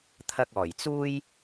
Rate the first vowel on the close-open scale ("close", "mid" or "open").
open